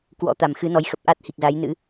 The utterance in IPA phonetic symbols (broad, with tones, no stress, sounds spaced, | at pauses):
k w ɔ̰˧˥ t̪ a˨˩ m x ɨ˨˦ n ɔ˨˦ j x ə˨˩ p̚ ʔ a˦˥ t̚ h i˨˩ k̚ z a˨˦ j n ɨ̰˧˥